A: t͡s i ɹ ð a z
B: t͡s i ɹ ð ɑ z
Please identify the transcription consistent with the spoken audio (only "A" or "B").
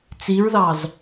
B